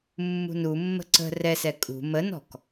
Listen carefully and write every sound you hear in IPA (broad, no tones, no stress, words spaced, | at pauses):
mːṳnu mːə̤ǀə̤ rɛsɛ kʼṳ mənɔ̤k